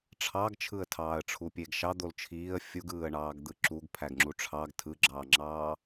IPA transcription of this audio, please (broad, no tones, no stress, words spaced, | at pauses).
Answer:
ʈ͡ʂʰɑɡt͡ʃʰɯə̯tʰɑːə̯ ʈ͡ʂʰupʲeɡʃɑ d̪olt͡ʃʰiːə̯ fʲuɡɯːə̯ɳɑːɡd̪ɯ ǁuɡ pʰæɡŋ͡ǁuʈ͡ʂʰɑɡ tʰɯɡ͡ǁɑːŋ͡ǁɑː